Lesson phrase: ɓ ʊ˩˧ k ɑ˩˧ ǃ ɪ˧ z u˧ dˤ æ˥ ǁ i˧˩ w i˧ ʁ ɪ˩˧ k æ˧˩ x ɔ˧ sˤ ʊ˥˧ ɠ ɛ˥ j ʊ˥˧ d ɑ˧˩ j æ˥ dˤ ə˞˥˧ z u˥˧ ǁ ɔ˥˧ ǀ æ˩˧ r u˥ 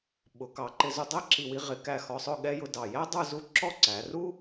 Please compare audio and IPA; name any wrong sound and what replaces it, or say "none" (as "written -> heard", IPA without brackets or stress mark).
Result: none